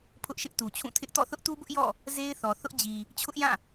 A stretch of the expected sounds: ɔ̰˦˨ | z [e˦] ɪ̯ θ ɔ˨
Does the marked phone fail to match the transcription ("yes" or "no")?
no